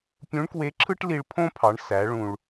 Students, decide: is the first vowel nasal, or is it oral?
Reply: nasal